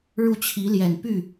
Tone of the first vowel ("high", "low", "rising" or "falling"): falling